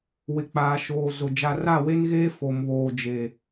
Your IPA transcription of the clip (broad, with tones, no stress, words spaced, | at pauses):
wɪ˨k͡paː˨ ʃoː˨ zʊ˨ d͡ʒa˨ra˦˨we˦nɣeː˦ fo˨mβoː˨d͡ʒe˨